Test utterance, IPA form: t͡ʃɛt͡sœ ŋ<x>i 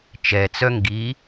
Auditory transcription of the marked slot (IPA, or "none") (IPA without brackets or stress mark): ɡ